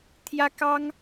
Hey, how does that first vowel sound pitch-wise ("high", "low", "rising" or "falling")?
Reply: high